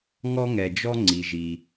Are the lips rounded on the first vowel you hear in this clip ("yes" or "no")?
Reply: yes